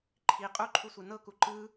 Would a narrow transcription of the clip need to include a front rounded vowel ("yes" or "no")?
no